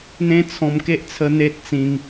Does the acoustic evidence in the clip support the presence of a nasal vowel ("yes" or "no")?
yes